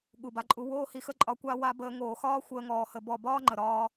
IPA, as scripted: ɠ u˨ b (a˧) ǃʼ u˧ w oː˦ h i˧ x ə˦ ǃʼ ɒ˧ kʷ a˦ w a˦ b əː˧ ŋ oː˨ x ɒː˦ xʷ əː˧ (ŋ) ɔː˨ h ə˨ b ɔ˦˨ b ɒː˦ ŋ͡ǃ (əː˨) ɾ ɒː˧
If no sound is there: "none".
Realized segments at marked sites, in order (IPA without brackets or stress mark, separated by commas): a˧, ŋ, ə˨